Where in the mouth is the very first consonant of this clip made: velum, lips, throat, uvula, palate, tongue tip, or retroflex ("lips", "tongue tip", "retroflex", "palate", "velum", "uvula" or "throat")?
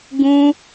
velum